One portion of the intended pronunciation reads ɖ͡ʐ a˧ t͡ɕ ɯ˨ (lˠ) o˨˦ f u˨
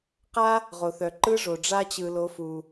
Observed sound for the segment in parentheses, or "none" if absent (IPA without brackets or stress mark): l